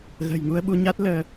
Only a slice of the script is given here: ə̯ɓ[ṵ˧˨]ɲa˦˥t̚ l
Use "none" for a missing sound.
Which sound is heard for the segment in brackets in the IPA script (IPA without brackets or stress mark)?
u˧